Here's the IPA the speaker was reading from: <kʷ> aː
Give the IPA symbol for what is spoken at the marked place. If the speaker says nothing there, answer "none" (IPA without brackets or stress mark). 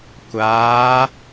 kʷ